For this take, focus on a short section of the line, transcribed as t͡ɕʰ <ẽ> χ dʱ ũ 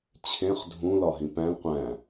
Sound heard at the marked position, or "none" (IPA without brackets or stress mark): ẽ